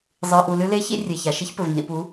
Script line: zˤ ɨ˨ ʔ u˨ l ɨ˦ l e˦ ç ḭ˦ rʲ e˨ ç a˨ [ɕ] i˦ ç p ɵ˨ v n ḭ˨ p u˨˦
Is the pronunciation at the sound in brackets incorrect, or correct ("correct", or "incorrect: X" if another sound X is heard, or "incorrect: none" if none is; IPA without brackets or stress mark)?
incorrect: ʃ